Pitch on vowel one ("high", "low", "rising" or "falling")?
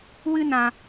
high